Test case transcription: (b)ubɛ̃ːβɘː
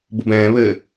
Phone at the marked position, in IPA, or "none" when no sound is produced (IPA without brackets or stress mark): b